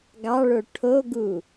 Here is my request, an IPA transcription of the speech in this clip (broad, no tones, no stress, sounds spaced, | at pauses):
ɡ ɑ ɭ o ʈʰ o ɡ u